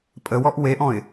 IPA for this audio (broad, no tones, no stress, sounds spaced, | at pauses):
pʼ ə w ɔ ʔ w e ʔ ɔ̃ ɪ̯